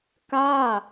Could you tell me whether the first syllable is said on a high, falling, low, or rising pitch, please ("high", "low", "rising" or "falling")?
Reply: falling